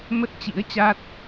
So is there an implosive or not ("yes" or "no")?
no